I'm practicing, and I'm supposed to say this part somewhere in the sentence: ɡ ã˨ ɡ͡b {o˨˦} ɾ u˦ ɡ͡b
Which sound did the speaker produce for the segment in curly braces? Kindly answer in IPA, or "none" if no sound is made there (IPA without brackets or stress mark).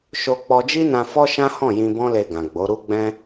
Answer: o˨˦